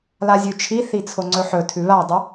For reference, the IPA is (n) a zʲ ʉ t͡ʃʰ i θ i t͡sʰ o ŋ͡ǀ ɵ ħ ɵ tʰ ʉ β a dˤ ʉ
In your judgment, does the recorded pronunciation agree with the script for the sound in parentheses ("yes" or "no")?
no